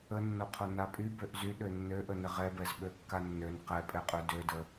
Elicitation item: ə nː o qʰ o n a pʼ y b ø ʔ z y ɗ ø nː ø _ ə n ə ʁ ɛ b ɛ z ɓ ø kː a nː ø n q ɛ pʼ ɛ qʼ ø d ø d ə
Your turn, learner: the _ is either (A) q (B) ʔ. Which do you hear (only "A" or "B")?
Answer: B